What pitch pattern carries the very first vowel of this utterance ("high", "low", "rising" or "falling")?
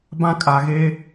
high